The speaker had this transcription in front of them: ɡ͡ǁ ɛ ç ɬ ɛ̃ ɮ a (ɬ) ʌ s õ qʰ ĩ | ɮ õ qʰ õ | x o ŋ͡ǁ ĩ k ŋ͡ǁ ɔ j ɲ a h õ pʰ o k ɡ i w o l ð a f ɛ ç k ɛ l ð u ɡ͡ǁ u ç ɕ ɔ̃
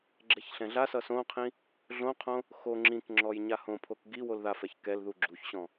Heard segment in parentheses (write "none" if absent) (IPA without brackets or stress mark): s